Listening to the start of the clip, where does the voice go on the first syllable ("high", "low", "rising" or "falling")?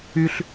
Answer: high